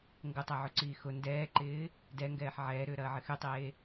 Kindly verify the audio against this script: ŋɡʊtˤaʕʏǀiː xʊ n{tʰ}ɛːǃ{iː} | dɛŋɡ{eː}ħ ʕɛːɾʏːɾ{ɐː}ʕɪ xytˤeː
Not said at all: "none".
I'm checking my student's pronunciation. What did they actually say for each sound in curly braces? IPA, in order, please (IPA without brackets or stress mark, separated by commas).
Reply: d, ɪː, ɛː, ɐː